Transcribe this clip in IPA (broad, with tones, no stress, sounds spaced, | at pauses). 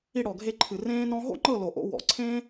i˧ ɽ ɔ˨ ɡʱ e˧ ǃʰ ɨ˨ r ẽː˦ n ɔ̃˦ ɦ o̰˦ ŋ͡ǃ ɤ˦˨ l o˨ ʔ o̰˧ w ɔ̰˨˦ ǀʰ ẽː˦